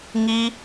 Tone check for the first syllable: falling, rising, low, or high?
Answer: high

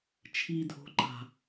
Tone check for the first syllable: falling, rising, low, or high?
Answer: low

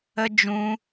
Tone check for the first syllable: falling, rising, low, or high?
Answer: high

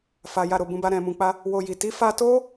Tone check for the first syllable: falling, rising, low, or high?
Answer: low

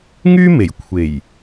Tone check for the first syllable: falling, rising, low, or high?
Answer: high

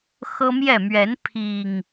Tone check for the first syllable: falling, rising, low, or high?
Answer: high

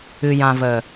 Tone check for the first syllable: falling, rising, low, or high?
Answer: low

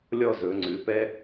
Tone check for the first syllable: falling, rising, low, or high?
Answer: falling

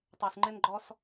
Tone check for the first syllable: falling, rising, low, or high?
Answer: low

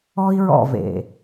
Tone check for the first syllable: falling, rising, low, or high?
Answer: high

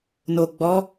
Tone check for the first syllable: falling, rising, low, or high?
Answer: low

